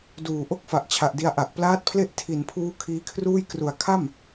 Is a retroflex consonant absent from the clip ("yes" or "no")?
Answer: yes